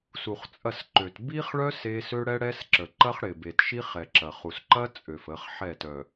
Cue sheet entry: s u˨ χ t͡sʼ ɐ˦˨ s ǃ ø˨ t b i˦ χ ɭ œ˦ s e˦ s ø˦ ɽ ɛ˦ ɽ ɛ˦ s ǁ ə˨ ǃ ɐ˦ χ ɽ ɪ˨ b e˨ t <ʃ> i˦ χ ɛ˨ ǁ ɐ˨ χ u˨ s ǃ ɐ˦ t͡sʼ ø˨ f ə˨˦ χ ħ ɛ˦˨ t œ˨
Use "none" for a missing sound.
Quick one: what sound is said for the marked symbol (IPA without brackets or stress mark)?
ʃ